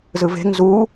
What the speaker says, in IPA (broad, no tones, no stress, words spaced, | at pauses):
zɯve̤ŋ zu